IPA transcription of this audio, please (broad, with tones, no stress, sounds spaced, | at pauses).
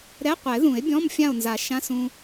ɾ ɛ˧˥˧ qʷ ɛ˨˩˦ ð ũ˨˩˦ e̯ bʲ ɔ̃˧˥˧ m fʲ ã˥˨ o̯ n z a˨˩˦ ʃ ã˧˥˧ s ũ˧